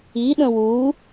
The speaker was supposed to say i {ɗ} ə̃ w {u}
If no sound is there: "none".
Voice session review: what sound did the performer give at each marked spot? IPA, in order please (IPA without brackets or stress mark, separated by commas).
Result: ɗ, u